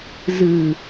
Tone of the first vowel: low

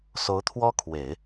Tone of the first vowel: rising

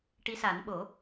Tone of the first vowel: rising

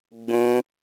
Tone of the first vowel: high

